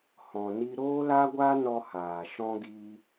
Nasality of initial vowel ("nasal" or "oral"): nasal